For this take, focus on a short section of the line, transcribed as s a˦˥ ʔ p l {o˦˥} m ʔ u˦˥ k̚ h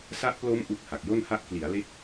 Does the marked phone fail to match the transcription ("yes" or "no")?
no